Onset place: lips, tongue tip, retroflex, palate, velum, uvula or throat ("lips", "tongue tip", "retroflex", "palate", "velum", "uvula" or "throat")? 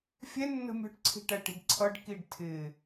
lips